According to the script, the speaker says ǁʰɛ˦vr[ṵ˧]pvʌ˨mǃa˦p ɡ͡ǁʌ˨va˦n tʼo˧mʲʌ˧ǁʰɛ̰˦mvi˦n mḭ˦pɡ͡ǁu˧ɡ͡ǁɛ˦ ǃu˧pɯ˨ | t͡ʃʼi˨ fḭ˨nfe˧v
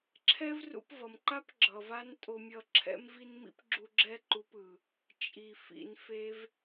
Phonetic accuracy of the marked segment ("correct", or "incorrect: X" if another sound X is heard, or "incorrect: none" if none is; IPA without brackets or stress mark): correct